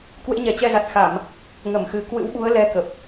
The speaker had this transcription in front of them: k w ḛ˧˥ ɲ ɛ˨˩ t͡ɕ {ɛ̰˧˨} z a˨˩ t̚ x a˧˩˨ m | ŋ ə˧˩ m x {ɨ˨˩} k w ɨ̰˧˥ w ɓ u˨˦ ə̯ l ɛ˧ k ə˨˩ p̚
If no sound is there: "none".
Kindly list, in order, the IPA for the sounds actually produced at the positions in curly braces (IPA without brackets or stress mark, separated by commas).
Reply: ɛ˧, ɨ˨˩